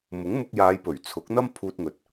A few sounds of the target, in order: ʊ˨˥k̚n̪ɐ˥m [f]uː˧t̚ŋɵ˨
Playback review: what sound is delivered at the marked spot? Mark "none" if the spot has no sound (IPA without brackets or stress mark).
pʰ